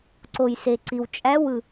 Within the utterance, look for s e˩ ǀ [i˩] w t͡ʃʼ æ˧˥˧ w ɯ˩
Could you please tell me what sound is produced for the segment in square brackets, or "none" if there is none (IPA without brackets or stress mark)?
i˩